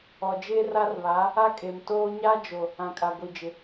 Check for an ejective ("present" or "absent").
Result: present